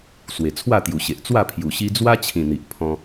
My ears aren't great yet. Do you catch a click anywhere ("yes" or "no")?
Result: no